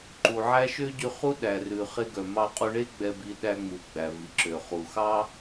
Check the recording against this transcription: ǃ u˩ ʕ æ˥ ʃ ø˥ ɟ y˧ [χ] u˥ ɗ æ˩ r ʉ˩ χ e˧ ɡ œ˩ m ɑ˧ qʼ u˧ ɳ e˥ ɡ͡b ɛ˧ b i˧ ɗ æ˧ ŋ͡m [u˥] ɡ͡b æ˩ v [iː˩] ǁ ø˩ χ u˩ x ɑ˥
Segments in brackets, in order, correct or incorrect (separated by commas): correct, incorrect, incorrect